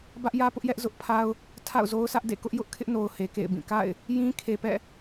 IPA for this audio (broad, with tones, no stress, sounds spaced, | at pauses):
b ä˦ ʔ j ä˦ p ʊ˦ ʔ j ɛ˦ ʔ z ʊ˦ ʔ pʰ a˦ ʊ̯ | tʰ a̰˦˨ ʊ̯ z o˦ ʊ̯ sʰ ä˦ ʔ d ḛ˦˨ k ʊ˦ ʔ j ʊ˦ ʔ kʰ ɪ˦ ʔ n o˨ ʊ̯ h e˨ k ḛ˦˨ ɪ̯ b ĩ˦˨ k a̰˦˨ ɪ̯ | j ĩ˦ kʰ e˨ p ɛ̰˦˨